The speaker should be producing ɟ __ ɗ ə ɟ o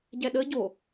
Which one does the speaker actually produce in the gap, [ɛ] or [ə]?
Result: ɛ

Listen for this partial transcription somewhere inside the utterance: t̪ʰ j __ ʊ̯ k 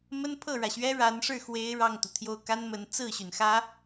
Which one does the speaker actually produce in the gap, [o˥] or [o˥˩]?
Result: o˥˩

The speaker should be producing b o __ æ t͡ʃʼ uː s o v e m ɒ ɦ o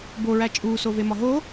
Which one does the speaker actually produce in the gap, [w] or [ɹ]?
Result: ɹ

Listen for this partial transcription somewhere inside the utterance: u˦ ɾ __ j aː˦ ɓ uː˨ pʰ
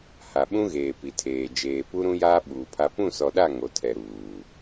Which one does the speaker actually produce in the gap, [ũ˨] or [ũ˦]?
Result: ũ˦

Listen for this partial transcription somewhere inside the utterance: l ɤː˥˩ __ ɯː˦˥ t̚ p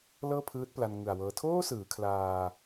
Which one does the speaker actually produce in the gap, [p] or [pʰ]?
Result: pʰ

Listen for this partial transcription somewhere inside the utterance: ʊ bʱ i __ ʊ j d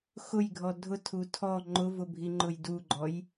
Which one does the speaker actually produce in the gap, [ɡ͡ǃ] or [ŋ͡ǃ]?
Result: ŋ͡ǃ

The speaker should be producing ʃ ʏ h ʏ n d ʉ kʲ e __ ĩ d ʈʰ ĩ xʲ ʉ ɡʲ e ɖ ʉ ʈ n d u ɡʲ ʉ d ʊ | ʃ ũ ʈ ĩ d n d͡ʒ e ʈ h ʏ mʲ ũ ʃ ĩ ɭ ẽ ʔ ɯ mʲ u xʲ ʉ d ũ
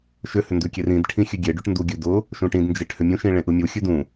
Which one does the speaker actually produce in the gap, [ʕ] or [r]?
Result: r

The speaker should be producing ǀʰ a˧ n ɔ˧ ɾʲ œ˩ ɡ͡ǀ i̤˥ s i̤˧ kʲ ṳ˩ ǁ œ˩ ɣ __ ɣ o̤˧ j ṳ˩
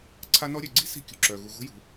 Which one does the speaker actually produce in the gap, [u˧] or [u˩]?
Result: u˩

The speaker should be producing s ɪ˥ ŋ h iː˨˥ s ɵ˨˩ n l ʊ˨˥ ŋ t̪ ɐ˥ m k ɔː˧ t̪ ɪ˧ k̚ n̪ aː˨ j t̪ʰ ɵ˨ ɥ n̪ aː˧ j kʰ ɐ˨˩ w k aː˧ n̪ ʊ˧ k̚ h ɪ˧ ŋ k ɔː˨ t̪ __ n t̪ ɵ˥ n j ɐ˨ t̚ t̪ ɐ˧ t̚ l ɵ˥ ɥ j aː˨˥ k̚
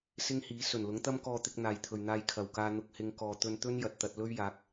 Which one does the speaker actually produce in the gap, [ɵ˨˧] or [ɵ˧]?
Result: ɵ˧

